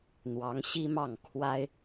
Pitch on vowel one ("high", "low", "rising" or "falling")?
rising